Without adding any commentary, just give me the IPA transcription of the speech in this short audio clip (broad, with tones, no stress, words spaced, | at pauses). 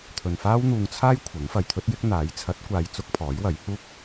t̪ʰɵ˨nfaː˥wn̪uː˧ŋt͡sʰaː˥j kʷʰɐ˨˥ŋfɐ˨jt̪ʰɵ˥t̚jɪ˥k̚ n̪aː˨˥j t͡sʰɐ˨˥t̚kʷaː˨j t͡sʊ˥k̚pʰɔː˨˥jwɐ˨˥j huː˥k̚